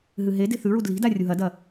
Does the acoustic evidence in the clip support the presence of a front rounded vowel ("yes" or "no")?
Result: no